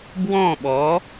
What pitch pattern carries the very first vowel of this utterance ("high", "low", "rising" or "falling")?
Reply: falling